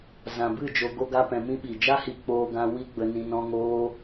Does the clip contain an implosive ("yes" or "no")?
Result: yes